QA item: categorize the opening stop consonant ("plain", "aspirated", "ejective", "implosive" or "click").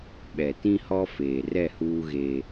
implosive